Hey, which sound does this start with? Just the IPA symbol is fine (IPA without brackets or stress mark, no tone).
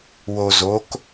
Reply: w